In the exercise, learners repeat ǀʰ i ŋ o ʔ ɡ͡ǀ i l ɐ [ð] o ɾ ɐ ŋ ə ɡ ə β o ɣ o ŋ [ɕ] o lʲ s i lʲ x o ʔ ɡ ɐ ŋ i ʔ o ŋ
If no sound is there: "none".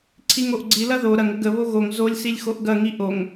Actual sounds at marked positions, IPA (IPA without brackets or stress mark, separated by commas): ð, z